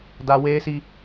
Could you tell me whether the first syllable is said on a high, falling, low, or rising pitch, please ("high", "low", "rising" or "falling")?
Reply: high